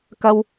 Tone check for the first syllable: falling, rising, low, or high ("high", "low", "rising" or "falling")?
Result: low